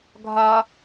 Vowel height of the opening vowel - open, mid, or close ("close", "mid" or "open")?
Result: open